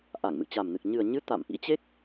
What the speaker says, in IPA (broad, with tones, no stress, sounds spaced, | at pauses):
ʔ a˧˩ ŋ m ɨ̰˧˨ t͡ɕ a˨˩ m n ɨ˨˩ k̚ ɲ ɨ˨˩ ə̯ ɲ ɨ˨˦ t̪ a̰˧˨ m ʔ ḭ˧˥ t͡ɕ e˦˥ k̚